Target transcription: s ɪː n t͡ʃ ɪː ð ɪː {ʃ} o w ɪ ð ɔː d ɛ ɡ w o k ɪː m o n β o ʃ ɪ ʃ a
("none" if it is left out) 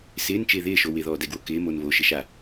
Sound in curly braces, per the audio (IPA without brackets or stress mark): ʃ